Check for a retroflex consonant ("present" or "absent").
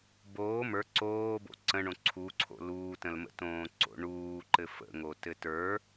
present